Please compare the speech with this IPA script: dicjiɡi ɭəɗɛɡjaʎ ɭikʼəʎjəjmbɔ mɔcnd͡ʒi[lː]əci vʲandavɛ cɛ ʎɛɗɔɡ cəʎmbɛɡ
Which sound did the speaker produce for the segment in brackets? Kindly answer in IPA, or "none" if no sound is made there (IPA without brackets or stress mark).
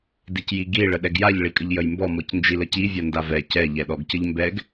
l